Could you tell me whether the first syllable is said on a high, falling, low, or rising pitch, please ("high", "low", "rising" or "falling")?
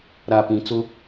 low